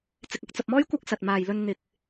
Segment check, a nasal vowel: absent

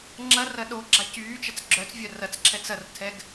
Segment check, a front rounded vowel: present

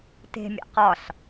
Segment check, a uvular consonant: present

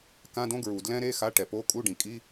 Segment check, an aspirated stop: absent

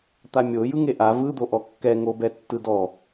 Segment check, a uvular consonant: absent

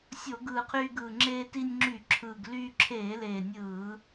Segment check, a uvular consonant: present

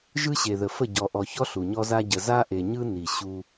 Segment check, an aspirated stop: absent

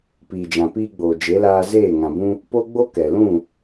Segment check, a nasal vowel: present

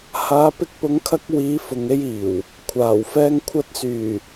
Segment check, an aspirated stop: present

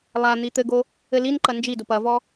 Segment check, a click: present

